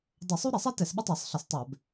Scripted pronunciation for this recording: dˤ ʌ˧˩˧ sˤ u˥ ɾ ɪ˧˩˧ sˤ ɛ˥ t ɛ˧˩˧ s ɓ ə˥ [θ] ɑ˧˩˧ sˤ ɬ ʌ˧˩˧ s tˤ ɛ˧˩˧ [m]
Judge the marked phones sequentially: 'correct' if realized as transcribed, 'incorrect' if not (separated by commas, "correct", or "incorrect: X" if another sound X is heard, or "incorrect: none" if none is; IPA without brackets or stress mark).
incorrect: tˤ, incorrect: b